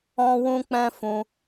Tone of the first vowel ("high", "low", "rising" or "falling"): high